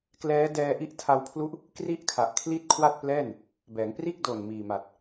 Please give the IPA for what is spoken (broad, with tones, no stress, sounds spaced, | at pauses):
k l ɛː˦˥ d ɛː˧ ʔ i˦˥ ʔ tʰ a˧ w pʰ l u˦˥ ʔ | k r i˥˩ ʔ kʰ a˨˩ ʔ kʰ l i˥˩ t̚ kʰ w a˥˩ t̚ p l ɛː˥˩ n | b ɛː˩˦ ŋ p r iː˥˩ k̚ d oː˨˩ n m iː˨˩ m a˨˩ t̚